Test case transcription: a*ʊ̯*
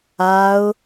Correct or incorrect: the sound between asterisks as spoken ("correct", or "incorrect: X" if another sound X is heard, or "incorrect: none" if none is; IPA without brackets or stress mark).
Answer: correct